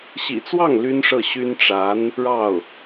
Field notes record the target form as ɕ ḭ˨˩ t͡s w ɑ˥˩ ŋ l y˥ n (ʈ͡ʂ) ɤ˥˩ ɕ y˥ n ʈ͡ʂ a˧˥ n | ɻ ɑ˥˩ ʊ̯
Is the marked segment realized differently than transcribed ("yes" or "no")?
yes